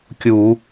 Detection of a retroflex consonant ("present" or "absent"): absent